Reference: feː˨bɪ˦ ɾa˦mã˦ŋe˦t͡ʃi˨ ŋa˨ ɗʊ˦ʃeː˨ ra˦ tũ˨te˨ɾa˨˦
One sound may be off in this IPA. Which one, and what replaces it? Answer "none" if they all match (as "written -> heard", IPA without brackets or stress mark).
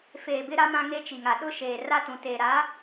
none